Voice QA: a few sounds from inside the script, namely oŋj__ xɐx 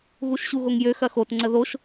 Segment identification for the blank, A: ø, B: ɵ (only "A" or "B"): A